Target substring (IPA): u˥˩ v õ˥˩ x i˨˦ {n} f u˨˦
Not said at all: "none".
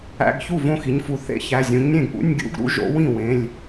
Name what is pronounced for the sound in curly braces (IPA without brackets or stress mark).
ɲ